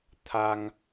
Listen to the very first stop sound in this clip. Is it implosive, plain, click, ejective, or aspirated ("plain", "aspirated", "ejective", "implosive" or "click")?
aspirated